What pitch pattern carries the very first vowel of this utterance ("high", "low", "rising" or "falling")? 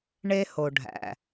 high